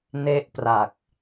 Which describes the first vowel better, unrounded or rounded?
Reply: unrounded